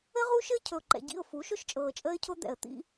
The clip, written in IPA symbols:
ə˦ ʁ u˦ ʃ ɘ˦ cʰ ɵ˨ ʊ̯ ǃ ɛ̰˨ ɟ ḭ˦˨ ʊ̯ f u˨˦ ʃ ʊ˦ ʃ t͡ʃʼ ɤː˨ t͡ʃʼ əː˦ ɪ̯ cʰ ʊ˦ d̪ ɛ̰˨ ə̯ t̪ ḭ˦

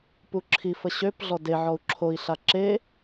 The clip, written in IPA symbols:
p u ǁʰ i f ə ɕ ø p ɮ ɔ d e ʕ ɔ u̯ ǁʰ o i̯ ɬ a ǁ e

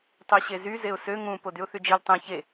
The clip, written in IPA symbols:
tˤ ø ɕ e z y z e ʊ̯ s ø ŋ ũ p o d y ʊ̯ θ y d͡ʒ i l tˤ ẽ ç e

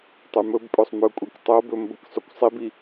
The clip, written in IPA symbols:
tˤ y m ɵ b pʼ ɵ sˤ m ɵ kʷʼ i k tˤ o b ɵ m b ə k sˤ y kʷ sˤ i b i

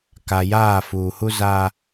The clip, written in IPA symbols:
k a˨ j aː˦˨ f uː˨ h u˦ z aː˦

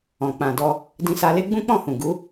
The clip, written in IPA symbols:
ɔ̃˨ k͡p ã˨ d ɔ˧ | d ĩ˧ s a˧ l e˦ ɡ͡b ũ˦ k͡p ɔ̃˦˨ h ũ˨ ɡ u˨˦

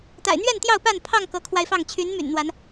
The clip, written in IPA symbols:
t̪ a̰˨˩ ɪ̯ n̪ ɥ ɛ˥˨ n t̪ j ɑ˥˨ ʊ̯ p a˥˨ n pʰ ɑ˥˨ ŋ k ɤ˨˦ kʰ w a˧ ɪ̯ f ɑ˥˨ ŋ t͡ɕʰ y˨˦ n m y̰˨˩ n n̪ w a˨˦ n

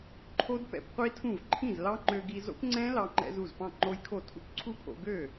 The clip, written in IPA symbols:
ǃʰ o˦˥ d p ɛ̰˧ p qʷ i˦˥ tʰ ũ˥˩ v ǃʰ ĩ˥˩ z l ɑ˦˥ ŋ͡ǃ ø˧ ɡ i˧ z o̰˦˥ p ŋ͡ǀ ɛ̃˦˥ l ɑ˧ ŋ͡ǃ ɛ̰˧ z u˥˩ z p ɑ̃˥˩ ŋ͡ǃ o˦˥ j kʰ o˥˩ tʰ ṵ˦˥ p ǀʰ u˦˥ pʰ o̰˧ ɡ ø˥˩

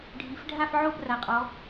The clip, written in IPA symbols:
ɖʱ i˩˧ f ɖʱ a˦˨ f ʕ o˦˨ b r a˩˧ qʼ ɔ˩˧

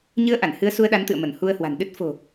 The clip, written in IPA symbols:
ɲ ɨ˨˦ ə̯ ʔ a˧˩ n h ɨ˨˦ ə̯ s u˧ ə̯ ɗ a˨˦ n t̪ ɨ̰˧˨ ə̯ m ə˧˩ n h u˧ ə̯ h w a̤˨˩ n ɗ ɨ˦˥ t̚ f o̤˨˩

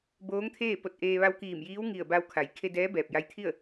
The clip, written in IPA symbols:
b oː˧˥ ŋ t̪ʰ eː˥˨ p o˧ t̚ ʔ eː˧ ʋ a˧ w k iː˧˩ m j iː˧˥ w ŋ i˧˩ ə̯ b a˧ w kʰ a˩˧ j kʰ e˧ d ɛː˧˥ b ɛː˧˩ p̚ j a˧˥ j t̪ʰ i˥˨ ə̯

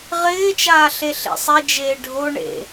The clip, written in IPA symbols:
ʁ ɪː t͡ʃ aː ɬ e ɬ ḛ sˤ e d͡ʒ eː ɖʱ o ɳ ḛ

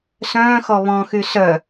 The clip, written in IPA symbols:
s œ̃ː x ɔ β ɔ̃ x y s œ

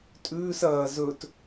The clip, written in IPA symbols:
tʼ ʉː s ɐː z ɵ t

